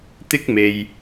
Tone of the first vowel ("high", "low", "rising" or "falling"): high